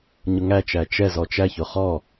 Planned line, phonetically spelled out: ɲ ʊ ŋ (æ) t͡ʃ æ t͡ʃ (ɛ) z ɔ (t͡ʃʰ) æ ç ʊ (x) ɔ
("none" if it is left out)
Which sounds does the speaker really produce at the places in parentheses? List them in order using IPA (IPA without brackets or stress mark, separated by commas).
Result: æ, ɛ, t͡ʃ, χ